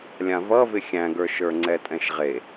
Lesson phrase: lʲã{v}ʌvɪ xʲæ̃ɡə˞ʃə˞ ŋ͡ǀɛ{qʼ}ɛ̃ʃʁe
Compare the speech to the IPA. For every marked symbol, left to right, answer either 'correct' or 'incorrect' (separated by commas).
correct, incorrect